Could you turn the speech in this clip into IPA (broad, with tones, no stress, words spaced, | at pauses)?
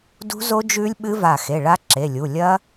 dṳ˦˥zo˦˥ d͡ʒʉ˦˥lʲɓɨ˦˥va˧˩ xe˩˧˩ɭa˦˥ǁe˩˧˩lʲu˩˧˩ lʲɐ˦˥